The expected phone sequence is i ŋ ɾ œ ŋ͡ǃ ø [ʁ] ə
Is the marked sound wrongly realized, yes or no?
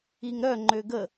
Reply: yes